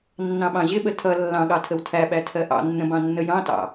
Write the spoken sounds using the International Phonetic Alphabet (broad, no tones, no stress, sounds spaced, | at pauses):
nː ɑ̃ ɓ ɑ̃ ʑ ɪ ɓ ə tʰ ʌ lː ɑ̃ ɠ ɑ tʰ ə w tʰ æ ɓ æ tʰ ɜ ʔ ɑ̰ nː ə̃ b ɑ̃ nː ə j ɑ̃ t ɑ̰